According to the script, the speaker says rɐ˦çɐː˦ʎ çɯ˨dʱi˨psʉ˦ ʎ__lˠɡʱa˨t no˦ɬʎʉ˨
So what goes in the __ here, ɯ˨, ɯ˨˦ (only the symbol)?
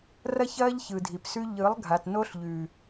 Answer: ɯ˨˦